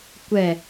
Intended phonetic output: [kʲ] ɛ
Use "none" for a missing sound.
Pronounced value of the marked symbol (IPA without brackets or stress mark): kʷ